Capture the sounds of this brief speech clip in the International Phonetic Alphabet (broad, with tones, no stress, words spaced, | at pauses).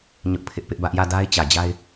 ɲʊ˦ʔpʰɪ˦ʔpɪ˦ʔbä˦ʔ jä˦˨da˦ɪ̯ t͡ɕä˨d͡ʑa˦ɪ̯